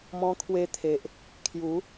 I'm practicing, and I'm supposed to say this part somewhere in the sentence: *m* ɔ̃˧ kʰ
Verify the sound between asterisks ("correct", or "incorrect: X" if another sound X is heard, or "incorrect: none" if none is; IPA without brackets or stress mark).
correct